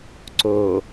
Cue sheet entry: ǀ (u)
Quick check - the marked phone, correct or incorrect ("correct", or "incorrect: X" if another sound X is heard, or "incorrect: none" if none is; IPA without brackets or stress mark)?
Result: incorrect: o